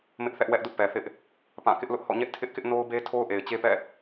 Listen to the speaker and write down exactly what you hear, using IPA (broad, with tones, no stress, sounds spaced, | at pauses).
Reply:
m ɪ˦ ʔ θ ɛ˦ ʔ w ɛ˦ ʔ d ʊ˦ ʔ p ɛ˨ θ ɪ˦ ʔ | p ã˦˨ k ɪ˦ ʔ l ʊ˦ ʔ h ɔ̰˦˨ ɲ ɛ˦ ʔ tʰ ɪ˦ ʔ k ɪ˦ ʔ n o˦ ʊ̯ b e˦ tʰ o˦ ʊ̯ ʔ e˨ ɪ̯ t͡ɕ e˦ p ɛ̰˦˨